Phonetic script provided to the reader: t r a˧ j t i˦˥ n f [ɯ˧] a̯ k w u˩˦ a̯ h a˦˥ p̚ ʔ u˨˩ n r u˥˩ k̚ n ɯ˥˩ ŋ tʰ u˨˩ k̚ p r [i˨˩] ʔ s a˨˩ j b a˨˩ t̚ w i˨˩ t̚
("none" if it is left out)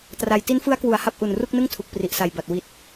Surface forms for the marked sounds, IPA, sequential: ɯ˦˥, i˨˩

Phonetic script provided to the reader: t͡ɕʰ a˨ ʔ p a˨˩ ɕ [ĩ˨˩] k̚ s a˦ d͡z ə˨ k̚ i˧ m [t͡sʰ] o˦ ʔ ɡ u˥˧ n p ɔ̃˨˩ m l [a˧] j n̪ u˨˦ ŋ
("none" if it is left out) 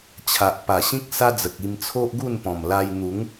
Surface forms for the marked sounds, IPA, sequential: ĩ˦, t͡sʰ, a˧

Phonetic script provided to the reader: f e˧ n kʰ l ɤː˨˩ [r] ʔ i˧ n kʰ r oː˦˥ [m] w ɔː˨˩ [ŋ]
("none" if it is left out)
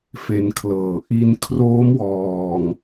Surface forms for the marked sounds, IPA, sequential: none, m, ŋ

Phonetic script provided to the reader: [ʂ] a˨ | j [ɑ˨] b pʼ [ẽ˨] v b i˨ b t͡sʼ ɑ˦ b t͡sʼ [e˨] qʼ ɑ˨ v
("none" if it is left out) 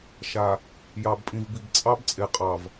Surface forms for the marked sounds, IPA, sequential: ʃ, ɑ˨, ĩ˨, e˨

